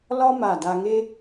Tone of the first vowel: high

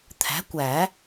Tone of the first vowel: rising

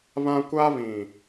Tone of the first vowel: high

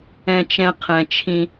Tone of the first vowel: low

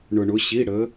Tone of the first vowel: low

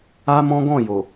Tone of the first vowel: high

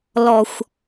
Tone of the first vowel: low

